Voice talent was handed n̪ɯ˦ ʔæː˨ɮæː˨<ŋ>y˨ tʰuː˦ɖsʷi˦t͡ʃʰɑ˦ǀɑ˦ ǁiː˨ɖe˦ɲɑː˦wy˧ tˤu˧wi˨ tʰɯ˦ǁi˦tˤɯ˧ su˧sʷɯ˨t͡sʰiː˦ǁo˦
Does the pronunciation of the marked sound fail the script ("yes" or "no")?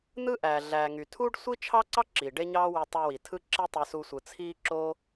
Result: no